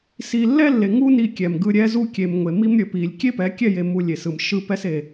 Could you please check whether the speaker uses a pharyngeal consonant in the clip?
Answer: no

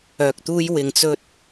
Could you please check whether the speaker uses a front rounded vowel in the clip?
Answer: yes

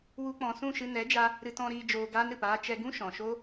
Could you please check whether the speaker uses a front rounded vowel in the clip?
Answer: no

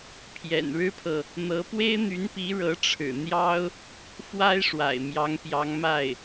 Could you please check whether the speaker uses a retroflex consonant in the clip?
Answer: yes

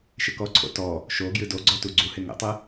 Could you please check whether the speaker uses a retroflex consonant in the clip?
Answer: no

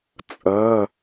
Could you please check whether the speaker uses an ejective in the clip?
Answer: yes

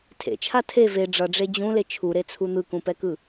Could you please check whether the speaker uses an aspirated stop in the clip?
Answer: yes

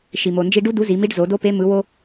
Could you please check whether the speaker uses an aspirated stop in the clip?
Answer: no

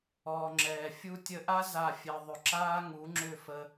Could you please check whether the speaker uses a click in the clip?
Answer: yes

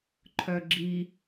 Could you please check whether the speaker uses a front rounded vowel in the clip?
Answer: yes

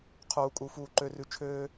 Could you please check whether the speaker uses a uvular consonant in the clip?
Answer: yes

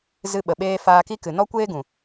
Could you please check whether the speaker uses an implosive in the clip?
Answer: yes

